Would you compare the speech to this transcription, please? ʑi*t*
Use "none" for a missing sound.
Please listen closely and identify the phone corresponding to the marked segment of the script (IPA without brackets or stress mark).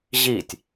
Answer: tʲ